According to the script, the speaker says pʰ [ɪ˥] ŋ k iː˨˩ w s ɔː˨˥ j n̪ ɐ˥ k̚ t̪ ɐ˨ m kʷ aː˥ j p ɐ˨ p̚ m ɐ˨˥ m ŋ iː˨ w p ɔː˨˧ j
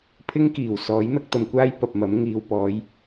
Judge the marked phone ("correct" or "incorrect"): correct